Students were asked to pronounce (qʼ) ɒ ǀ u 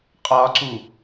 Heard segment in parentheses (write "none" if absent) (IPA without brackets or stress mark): qʼ